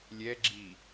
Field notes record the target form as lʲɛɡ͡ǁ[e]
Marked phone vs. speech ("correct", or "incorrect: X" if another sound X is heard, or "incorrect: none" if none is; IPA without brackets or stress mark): incorrect: i